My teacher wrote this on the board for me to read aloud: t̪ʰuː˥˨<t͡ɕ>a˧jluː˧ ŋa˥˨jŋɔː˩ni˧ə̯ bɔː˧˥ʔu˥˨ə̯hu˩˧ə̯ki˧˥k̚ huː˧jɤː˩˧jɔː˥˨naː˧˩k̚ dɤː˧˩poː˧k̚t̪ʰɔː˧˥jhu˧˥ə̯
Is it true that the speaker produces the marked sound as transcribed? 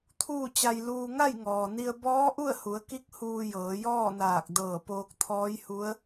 yes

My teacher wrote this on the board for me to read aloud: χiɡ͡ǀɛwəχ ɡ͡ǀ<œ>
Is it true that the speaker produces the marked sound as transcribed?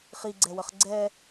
no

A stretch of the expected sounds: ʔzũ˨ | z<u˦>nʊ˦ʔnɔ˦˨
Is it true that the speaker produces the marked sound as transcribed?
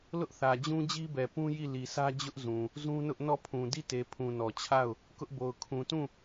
no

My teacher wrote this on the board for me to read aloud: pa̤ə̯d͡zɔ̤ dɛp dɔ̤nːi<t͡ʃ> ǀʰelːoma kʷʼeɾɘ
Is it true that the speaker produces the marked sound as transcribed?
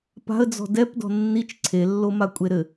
yes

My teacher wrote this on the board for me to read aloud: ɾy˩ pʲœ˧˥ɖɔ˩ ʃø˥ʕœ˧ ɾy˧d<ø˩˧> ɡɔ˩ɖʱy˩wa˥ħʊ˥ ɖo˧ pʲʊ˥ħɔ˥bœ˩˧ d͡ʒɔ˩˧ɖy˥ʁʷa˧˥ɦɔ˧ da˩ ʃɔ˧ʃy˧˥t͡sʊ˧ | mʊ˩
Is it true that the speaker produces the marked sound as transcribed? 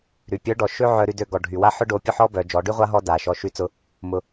no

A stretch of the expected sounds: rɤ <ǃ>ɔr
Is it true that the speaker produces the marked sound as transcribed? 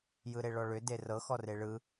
no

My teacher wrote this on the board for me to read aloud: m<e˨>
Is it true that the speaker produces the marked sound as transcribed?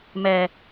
no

